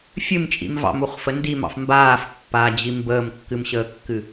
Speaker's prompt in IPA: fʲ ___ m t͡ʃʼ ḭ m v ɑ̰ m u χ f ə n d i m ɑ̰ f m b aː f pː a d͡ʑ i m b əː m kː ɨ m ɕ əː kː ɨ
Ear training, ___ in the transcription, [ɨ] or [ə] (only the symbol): ɨ